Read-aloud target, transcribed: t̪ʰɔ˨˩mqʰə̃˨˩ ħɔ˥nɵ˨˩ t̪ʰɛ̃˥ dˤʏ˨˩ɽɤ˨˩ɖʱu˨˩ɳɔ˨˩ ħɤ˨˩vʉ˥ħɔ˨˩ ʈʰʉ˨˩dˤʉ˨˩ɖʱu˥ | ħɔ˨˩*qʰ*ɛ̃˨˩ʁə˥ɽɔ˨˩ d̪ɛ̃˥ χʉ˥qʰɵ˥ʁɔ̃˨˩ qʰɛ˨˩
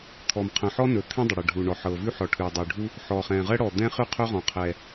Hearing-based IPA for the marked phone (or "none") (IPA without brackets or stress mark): χ